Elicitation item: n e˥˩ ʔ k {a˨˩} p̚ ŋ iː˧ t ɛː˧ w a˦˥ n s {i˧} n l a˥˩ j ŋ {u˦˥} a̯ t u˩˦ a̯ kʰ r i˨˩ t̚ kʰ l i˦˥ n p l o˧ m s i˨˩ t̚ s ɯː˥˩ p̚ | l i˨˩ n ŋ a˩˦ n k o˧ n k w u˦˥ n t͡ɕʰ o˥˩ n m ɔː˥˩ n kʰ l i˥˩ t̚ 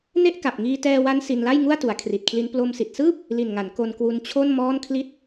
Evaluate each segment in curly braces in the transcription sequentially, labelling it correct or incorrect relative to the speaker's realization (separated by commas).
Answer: correct, correct, incorrect